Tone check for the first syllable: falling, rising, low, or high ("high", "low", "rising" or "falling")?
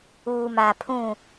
low